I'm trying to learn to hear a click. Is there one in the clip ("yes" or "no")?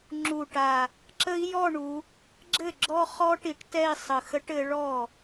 yes